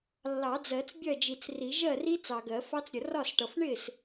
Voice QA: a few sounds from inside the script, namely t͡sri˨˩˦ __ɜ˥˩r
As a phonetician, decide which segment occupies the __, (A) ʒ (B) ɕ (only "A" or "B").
A